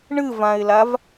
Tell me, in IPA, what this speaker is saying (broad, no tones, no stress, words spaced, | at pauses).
ɳɨvãɪ̯lav